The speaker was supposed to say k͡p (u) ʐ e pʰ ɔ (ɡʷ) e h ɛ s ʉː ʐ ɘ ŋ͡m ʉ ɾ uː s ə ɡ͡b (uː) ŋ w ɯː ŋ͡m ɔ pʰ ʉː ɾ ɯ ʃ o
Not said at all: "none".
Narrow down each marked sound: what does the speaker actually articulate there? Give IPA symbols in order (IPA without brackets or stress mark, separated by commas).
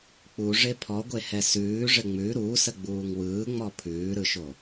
u, ɡʷ, uː